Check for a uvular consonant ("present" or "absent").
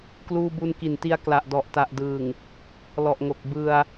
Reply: absent